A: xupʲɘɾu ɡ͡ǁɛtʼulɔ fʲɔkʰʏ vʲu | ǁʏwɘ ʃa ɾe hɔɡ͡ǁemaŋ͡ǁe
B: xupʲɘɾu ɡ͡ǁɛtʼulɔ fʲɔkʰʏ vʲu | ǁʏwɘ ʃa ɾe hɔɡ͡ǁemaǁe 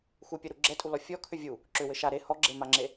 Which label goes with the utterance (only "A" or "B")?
A